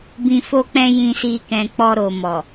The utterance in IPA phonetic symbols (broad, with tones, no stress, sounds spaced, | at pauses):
b ĩ˧ f o˦ k͡p ɛ̃˦ j ĩ˧ s i˧ k ɛ̃˧ k͡p ɔ˧ ɾ o˨ m ɔ˨